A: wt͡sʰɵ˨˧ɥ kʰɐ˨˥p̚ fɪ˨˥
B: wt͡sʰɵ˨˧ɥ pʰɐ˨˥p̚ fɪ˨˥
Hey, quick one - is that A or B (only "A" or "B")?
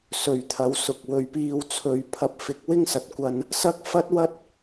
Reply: B